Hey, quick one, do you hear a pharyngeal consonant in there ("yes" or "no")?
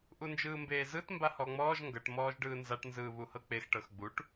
no